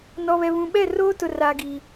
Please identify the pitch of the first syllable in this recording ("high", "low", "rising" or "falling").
low